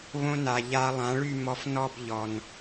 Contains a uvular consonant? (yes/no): no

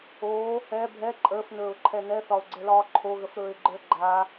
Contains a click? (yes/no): yes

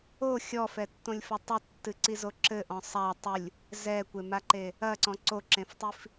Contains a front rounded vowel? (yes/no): no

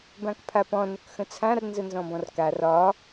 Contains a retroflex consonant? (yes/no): no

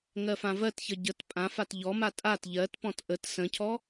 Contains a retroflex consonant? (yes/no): no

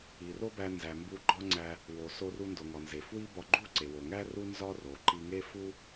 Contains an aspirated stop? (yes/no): no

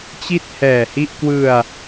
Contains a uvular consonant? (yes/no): no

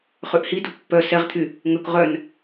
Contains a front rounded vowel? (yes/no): yes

